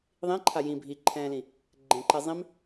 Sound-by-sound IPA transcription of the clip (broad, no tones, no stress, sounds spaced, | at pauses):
ðˤ ĩ ǃʰ a j ĩ bʱ i ǃʰ ɛ̃ː l ĩ | ɡ͡ǃ ẽ ǃ ɛ zˤ ĩ m